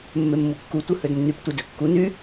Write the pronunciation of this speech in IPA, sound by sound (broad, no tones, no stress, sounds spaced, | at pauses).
mː e mː u kː u tʷ ɯ h ø d nː y p tʷ ɯ d ø kː u n y